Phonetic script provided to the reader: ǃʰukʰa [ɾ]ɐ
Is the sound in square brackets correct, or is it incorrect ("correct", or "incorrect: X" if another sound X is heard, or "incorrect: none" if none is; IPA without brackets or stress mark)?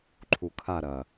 correct